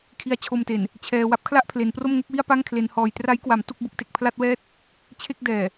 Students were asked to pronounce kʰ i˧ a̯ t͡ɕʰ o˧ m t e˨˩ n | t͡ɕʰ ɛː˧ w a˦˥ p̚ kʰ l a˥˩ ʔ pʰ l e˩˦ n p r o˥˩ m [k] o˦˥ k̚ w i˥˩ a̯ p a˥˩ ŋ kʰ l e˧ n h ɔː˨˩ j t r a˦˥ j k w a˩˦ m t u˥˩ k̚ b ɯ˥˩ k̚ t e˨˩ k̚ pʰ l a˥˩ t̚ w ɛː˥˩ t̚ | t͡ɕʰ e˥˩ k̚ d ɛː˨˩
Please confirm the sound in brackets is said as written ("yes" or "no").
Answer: no